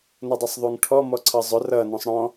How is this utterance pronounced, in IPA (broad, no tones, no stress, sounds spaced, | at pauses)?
n ʌ dˤ ʌ sˤ ðˤ u ŋ ʈʰ ɔ m ɔ ǀʰ ʌ zˤ ʊ r ʌ n ɔ̃ sˤ ɽ ɔ̃